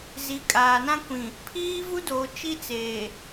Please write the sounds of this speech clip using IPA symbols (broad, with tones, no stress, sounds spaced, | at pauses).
z i˨˦ kʼ aː˨ n ã˦ kʷ ĩ˨ | pʰ iː˦ v u˦ d oː˨ t͡ʃ i˦ t͡s eː˨